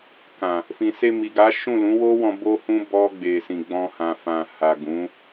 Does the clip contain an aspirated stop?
no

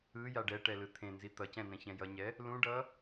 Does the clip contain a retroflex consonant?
yes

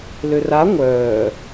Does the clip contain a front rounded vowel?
yes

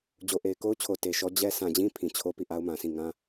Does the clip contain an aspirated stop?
yes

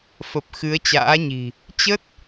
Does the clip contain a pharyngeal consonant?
no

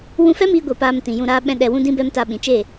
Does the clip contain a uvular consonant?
no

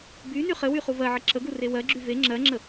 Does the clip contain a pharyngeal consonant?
yes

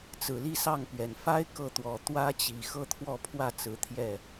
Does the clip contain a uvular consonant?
no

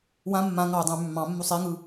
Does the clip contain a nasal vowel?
yes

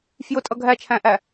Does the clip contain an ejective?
yes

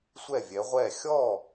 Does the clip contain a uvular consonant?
yes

